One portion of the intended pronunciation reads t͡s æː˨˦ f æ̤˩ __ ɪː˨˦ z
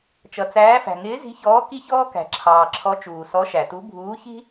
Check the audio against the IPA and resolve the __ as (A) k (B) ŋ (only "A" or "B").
B